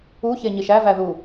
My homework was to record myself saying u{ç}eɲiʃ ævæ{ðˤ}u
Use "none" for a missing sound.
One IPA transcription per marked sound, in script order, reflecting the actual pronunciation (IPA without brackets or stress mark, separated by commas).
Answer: ç, ð